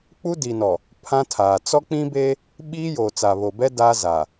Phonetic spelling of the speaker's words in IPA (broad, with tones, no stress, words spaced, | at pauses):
k͡pu˦di˨nɔ˨ | pʰã˦tʰaː˨ t͡sɔ˦k͡pĩ˦be˦ | ɓiː˦joː˨ t͡sa˨βo˨bɛ˦ daː˦zaː˨